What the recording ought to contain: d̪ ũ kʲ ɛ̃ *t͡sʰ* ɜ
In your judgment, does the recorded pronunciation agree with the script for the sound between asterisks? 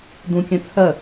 yes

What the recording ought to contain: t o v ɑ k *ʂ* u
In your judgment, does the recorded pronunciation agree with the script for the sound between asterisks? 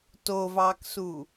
no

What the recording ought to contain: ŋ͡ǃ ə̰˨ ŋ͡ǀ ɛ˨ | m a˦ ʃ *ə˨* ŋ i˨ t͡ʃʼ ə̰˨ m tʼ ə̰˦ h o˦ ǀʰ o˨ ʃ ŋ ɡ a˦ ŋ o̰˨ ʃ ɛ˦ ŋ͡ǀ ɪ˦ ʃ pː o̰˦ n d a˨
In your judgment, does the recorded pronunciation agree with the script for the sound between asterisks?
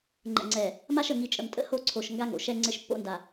yes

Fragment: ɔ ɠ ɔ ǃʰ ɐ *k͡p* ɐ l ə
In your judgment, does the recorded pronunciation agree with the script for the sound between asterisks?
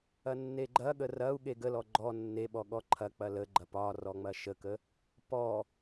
yes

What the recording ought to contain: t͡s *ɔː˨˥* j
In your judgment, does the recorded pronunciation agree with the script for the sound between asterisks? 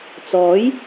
yes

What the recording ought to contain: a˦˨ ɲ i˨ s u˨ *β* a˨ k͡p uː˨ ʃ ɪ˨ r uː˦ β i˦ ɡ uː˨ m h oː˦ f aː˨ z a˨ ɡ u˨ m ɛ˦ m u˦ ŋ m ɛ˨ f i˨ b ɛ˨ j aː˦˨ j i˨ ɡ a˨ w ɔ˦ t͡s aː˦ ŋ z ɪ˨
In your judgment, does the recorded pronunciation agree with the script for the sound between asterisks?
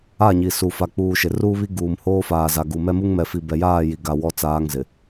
no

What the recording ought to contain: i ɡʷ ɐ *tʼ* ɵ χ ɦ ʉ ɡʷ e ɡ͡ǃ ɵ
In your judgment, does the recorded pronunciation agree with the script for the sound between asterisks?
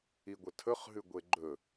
no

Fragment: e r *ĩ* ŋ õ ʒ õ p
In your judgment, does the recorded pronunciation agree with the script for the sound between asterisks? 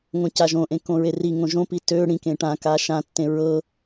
no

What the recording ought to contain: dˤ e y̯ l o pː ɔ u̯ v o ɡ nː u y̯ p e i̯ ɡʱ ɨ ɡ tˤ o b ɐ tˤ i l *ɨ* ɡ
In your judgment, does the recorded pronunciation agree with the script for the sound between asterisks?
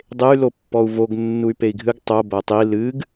yes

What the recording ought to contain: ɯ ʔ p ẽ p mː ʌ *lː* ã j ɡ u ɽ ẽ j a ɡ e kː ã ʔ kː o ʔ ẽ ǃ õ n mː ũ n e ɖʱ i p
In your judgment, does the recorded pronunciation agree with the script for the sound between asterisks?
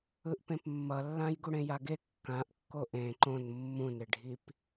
yes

